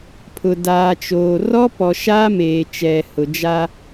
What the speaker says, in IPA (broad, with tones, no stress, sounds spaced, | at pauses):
pʰ ʊ˨ d aː˨ t͡ʃ oː˨ r ɔ˦ p ɔ˨ ʃ aː˦ m eː˨ t͡ʃ ɛ˨ h ʊ˨ d͡ʒ a˦